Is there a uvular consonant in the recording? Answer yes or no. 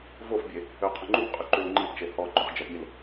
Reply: yes